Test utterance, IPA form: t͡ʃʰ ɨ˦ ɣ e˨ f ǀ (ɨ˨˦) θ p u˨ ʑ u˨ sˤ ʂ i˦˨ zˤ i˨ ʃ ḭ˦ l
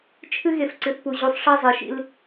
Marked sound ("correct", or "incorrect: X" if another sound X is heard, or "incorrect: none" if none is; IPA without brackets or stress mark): incorrect: ɨ˨